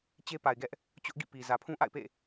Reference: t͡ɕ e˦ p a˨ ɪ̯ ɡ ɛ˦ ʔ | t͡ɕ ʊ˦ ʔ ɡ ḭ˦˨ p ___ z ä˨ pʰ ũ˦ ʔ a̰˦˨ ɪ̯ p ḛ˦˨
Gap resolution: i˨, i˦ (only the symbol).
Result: i˨